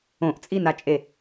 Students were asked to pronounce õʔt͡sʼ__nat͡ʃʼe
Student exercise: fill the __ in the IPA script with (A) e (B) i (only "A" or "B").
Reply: B